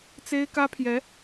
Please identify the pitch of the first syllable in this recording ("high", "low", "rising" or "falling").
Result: high